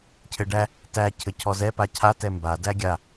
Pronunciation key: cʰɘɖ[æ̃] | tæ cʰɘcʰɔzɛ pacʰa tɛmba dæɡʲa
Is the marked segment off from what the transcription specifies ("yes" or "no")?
yes